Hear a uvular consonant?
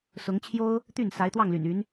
no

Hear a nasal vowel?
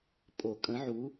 yes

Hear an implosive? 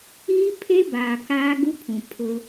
no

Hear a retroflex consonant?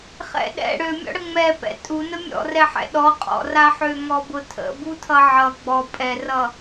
yes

